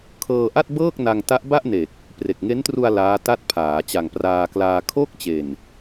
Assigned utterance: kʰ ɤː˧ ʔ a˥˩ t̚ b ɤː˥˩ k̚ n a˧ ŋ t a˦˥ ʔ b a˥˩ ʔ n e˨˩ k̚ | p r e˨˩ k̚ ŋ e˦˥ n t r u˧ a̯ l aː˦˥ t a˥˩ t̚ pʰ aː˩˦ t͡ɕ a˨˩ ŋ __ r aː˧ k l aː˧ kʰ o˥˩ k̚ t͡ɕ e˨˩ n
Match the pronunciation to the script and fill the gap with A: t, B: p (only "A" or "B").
B